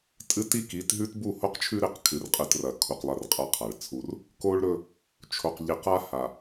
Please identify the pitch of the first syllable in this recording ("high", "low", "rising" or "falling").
high